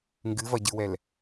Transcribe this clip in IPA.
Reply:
ŋ ɡ ɨ v ɐ ɟ ɨ w ɛ l

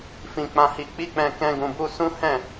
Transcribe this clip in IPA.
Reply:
f ĩ˧ k͡p ã˧ h i˧ k͡p i˦ k͡p ɛ̃˧ k ɛ̃˦ ɡ ũ˧ b u˦ s ũ˦ h ɛ̃˦˨

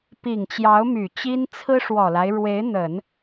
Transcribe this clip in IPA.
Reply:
p i˨˩ ŋ t͡ɕ j ɑ˧˥ ʊ̯ m y˨˩ t͡ɕ i˥ n t͡sʰ ɹ̩˥ ʂ w ɔ˨˩ l a˦ ɪ̯ ɻ w e˧˥ ɪ̯ n̪ ə˨˩˦ n

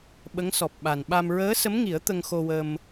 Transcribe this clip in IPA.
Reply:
ɓ ə˧˥ ŋ s ɔ˨˩ p̚ ɓ a˨˩ n ɓ a˧ m ɹ əː˧˥ s ə˧˥ m ŋ i˨˩˦ ə̯ t̪ ə˧ ŋ x o˧ w ə˧ m

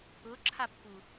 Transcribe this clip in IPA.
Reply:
ʊ ǁʰ a pː u

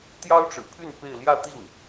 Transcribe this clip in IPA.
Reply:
t̪ j ɑ˥ ʊ̯ ʈ͡ʂ ɻ̩˨˩ pʰ y˥˧ n p e˥˧ ɪ̯ l j ä˥˧ t̪ i˥˩ ŋ

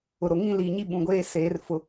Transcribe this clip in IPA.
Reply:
ʊ˨ ɾ o˨ ŋ ĩ˦ l i˨ ɲ i˦ ɓ ũ˨ ɡʷ eː˦ s eː˨˦ r f ʊ˨˦

